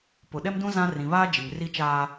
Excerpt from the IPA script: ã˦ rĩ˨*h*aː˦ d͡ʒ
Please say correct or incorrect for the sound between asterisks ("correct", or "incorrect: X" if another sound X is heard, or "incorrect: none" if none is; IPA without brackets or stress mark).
incorrect: β